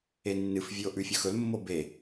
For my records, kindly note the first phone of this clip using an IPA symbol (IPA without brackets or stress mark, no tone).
e